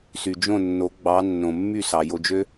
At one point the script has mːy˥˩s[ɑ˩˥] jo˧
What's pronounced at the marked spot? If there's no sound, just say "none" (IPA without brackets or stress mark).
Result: ɑ˩